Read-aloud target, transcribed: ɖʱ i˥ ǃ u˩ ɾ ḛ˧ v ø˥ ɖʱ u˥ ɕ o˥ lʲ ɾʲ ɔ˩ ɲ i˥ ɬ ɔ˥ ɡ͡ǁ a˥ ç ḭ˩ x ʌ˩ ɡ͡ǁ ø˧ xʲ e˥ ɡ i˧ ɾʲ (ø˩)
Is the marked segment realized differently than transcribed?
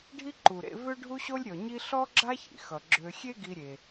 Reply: yes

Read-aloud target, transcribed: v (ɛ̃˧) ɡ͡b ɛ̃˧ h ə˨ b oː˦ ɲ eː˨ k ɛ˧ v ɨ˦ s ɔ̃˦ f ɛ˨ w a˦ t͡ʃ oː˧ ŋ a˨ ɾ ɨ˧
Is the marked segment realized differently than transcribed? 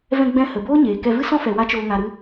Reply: no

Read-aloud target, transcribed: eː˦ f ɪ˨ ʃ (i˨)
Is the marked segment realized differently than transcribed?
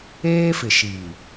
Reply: no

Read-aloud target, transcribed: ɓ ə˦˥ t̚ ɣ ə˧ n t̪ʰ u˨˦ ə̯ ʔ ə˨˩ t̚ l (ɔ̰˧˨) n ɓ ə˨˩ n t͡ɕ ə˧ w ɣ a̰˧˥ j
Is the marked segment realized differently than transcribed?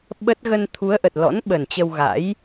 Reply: yes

